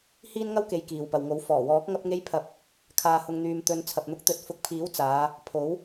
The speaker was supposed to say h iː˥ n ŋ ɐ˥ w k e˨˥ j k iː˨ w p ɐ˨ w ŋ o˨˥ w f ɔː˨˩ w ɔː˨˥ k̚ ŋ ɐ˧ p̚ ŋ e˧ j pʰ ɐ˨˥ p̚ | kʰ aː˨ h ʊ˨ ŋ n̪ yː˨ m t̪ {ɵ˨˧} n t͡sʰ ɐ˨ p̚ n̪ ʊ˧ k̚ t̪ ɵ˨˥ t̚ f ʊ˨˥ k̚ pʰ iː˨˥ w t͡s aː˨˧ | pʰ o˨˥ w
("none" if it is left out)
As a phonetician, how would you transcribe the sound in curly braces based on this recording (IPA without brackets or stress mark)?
ɵ˨˧